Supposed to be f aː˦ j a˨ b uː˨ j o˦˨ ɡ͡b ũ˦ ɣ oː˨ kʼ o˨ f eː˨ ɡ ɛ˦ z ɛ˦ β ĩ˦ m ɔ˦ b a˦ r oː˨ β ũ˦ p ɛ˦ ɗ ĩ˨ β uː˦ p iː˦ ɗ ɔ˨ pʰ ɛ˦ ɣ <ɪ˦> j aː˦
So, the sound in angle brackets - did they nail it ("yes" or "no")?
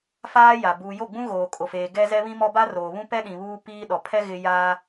yes